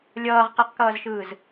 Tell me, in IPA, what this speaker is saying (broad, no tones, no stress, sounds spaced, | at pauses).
lʲ ʌː ʁ q ɛ q k ʌː z ʃ ɯː z